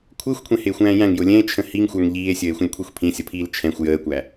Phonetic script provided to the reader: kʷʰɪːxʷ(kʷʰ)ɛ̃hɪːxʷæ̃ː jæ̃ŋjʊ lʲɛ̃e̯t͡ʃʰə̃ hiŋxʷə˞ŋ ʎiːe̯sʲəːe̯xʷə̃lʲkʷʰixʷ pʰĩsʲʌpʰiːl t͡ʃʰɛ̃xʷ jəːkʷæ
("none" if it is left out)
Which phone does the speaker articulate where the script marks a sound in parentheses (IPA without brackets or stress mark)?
kʷʰ